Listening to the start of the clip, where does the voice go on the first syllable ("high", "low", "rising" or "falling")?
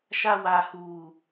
high